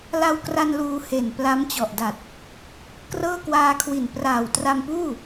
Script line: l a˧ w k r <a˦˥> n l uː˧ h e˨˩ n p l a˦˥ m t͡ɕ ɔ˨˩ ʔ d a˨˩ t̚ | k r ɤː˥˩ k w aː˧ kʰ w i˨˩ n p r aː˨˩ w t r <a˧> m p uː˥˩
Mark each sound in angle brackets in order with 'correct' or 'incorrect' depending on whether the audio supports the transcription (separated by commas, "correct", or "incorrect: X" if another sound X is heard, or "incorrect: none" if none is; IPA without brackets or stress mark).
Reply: incorrect: a˧, correct